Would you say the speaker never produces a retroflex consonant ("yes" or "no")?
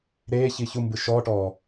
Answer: no